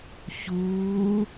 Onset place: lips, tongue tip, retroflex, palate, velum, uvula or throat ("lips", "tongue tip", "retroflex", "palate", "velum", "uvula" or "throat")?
palate